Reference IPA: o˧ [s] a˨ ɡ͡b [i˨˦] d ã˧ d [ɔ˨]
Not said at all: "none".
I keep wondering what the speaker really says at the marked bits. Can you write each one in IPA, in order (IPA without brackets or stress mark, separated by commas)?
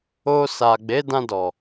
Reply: s, e˨˦, ɔ˨